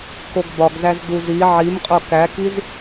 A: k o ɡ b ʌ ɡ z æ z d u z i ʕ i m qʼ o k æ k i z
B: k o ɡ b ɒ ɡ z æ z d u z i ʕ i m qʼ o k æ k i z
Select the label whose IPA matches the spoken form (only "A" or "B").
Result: B